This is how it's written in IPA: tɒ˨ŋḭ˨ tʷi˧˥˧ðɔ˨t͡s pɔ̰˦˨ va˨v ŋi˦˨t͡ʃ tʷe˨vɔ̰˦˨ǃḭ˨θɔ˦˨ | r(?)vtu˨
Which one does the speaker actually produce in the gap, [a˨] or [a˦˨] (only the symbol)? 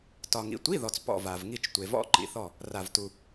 a˨